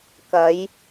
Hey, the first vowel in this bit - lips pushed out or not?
no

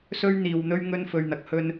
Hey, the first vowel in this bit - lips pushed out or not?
yes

